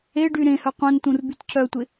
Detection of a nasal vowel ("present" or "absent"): present